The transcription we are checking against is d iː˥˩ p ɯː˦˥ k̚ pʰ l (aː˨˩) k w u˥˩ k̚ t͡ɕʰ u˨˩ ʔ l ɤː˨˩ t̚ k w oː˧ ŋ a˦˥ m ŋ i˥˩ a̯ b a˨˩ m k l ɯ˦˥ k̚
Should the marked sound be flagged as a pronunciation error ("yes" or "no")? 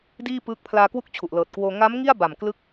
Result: yes